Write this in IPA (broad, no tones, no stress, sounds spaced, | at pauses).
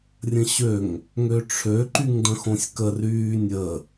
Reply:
rʲ ə̃ ɕ ø ŋ | ŋ ø ʈ͡ʂʰ ø ǃ y ŋ d ə̃ x õ sʲ k ə r yː nʲ ə